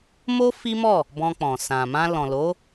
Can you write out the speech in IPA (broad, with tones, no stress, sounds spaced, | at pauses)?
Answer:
m o˦ f i˦ m ɔ˦˨ | b ɔ̃˧ k͡p ɔ̃˨ s ã˨ m ã˧ l ɔ̃˨ l o˨˦